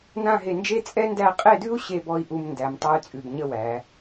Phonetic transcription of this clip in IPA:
n ã˥˧ ɦ e˧ n d͡ʒ e˥ t͡sʼ ɛ˥ n d æ˥˧ qʼ e˥˧ d ʉ˥ u̯ ɕ e˥˧ b ɔ˥˧ i̯ ʔ u˧ m n d æ˩˧ m tˤ æ˥ y̯ t͡sʼ ʉ˧˩ b ɲ ə˥˧ w æ˩˧

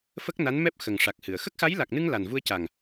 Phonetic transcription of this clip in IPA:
f ə˦˥ k̚ n a˧˥ n m ɛ˦˥ p̚ x ə˨˩ ŋ ʂ a˨˩ k̚ h ɨ˨˩˨ ə̯ x ə˦˥ k̚ x a˧˥ j l a˨˩ k̚ n ɨ˧ ŋ l a˨˩ n v u˧ ə̯ c a˨˩ ŋ

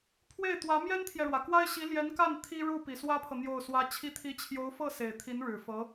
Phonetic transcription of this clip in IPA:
pʰ w e˥˩ ɪ̯ t̪ w ä˧˥ m j ɛ˥ n t̪ʰ j ɛ˨ ɻ w ä˩ k w a˥ ɪ̯ ɕ i˧˥ l j ɛ˧˥ n k a˥˩ n t̪ʰ i˥ ɻ u˥˩ p i˨˩ s w ä˥ pʰ ɤ˨ n̪ j o˥˩ ʊ̯ s w ä˥ t͡ɕʰ i˧˥ t̪ʰ i˧˥ t͡ɕʰ j o˧˥ ʊ̯ f ɤ˥˩ s e˨˩ ɪ̯ t̪ʰ i˧˥ n ɻ ɻ̩˨˩ f ɤ˧˥

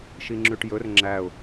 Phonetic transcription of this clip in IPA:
ʃ i ŋ͡ǁ ʉ ʈ j ɵ r ŋ͡ǁ æ ʊ̯

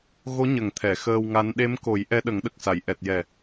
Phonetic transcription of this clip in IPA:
ɣ o˧˥ ɲ ə˨˩ ŋ t̪ʰ ɛ˨˩˨ x əː˧ w ŋ a˧˥ n ɗ e˧˥ m k o˨˩˦ j ʔ ɛ˧˥ ɗ ə˨˩˦ ŋ ɗ ə˨˩ k̚ s a˨˩˨ j ʔ ɛ˨˩ t̚ j ɛ˨˩

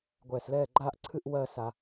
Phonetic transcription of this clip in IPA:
ɡʷ ɛː˨˩ s l ɛː˥˩ ɡ͡ǃ aː˥˧ ʔ ǀʰ ɨ˥˧ ʔ w ɜ˥˧ s a˨˩

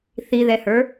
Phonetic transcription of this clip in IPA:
θ i ð ɛ h ə˞

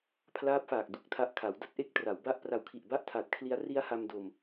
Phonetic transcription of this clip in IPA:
pʰ l aː˦˥ p̚ f aː˨˩ k̚ d u˥˩ k̚ tʰ a˥˩ ʔ kʰ a˩˦ w d a˦˥ t̚ ʔ e˦˥ k̚ t r a˩˦ w b a˦˥ ʔ p r a˨˩ w kʰ i˨˩ ʔ b a˥˩ ʔ tʰ a˨˩ t̚ kʰ l i˦˥ a̯ r i˦˥ a̯ h a˧ m d o˧ m

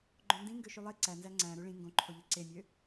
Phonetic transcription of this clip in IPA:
ɡ͡ǃ õ n d ĩ ŋ ɡ ø ʃ y lˠ e ǀ æ n z æ ŋ͡ǀ æ̃ ɾ u ɭ ĩ ŋ ɡ õ ǃʰ o ʎ e ǀ e mʲ ø

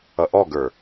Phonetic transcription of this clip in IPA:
ʌ ʔ ɔ ɡ ə˞

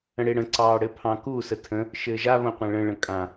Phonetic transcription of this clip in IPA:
ə̃ ɽ e ɽ ə̃ ǀ ɑː ɽ ɘ pʰ ɑ̃ k u s ə tʰ ə̃ | ʃ ɘː ʒ a β õ qʷ ã ɭ ə̃ ɭ ə̃ kʼ ã

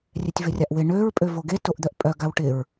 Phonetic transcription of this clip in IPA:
rʲ e tʲ v ɪ rʲ a ʔ w ɪ ɳ ø ɹ pʼ ø v o ɡ e t o ʔ d̪ œ ʔ pʼ œ ɡ a w ʈ ɪ ɹ

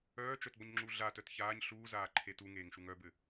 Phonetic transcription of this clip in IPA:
œː t͡ʃ œ t b ɔ ɲ ŋ͡ǁ u ɮ a t œ t ç aː ɲ ɬ uː z aː ǃʰ e t u ŋ eː ŋ ʃ u ŋ œ b ɘ

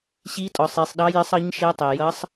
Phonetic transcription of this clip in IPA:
ɕ i˧˥ tʼ ɔ˩ sˤ i˩ sˤ ɗ ɑ˧˥ j ɪ˧˥ sˤ ʌ˧˥ ɲ ʃ ɛ˧˥ tˤ ɛ˩ j ʌ˧˥ sˤ

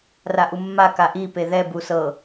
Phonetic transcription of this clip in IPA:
r a ʔ u mː a k a ʔ i p e ð ɛ b u s ɤ

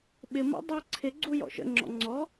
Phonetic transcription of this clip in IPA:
ɓ ɪ m ɔ̰ dˤ æ ǀʰ ɪ ɡ͡ǀ u j ɔ̰ ʃ ə̰ ŋ͡ǁ ɔ̰ ŋ͡ǀ ɔ

